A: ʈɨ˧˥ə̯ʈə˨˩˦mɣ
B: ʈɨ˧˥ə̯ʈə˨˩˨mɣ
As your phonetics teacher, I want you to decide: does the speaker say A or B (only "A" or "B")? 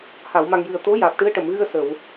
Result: B